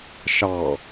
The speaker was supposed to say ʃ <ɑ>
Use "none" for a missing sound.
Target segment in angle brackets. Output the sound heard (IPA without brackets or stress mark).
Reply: ɑ